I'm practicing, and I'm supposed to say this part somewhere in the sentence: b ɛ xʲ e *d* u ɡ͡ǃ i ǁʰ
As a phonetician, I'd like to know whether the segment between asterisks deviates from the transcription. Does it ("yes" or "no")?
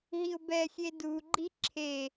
no